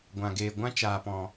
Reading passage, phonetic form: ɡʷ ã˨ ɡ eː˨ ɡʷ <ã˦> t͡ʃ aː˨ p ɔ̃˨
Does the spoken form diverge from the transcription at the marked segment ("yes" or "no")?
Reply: no